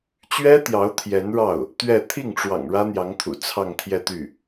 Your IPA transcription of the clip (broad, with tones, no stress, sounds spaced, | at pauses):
t͡ɕ ɥ ɛ˥ t̪ j ɑ˧˥ ʊ̯ t̪ʰ j ɛ˧˥ n ɻ ɑ˥˩ ʊ̯ | t̪ ɥ ɛ˥˧ t̪ʰ i˥˩ ŋ ʈ͡ʂ w ɑ̰˨˩ ŋ ɻ ä˥ n̪ j ɑ˧˥ ŋ t̪ʰ ṵ˨˩ t͡sʰ ɑ˥˧ ŋ t̪ʰ j ɛ˥˧ t̪ y˥˩